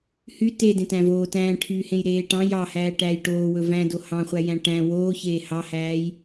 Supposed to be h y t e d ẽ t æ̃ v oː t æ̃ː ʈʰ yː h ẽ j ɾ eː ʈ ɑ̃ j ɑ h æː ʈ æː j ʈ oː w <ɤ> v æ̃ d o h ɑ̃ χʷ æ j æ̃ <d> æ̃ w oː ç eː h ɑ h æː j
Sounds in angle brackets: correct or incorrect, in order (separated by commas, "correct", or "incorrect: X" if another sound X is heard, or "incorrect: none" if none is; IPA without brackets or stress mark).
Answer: incorrect: ɵ, incorrect: ʈ